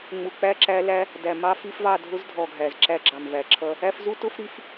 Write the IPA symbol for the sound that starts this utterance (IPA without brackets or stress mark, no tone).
ŋ͡m